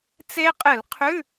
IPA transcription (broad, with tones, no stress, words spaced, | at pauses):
t͡se˦˥qʼɨ˧˩˧l qʰʉ˧˥˧